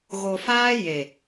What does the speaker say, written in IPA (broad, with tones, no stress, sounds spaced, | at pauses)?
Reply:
ɣ o˨ f aː˦ j e˨